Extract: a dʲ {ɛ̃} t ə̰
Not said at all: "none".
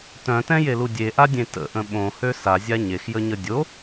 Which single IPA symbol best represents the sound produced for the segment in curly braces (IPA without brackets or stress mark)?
ẽ